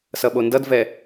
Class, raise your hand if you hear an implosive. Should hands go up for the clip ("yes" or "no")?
yes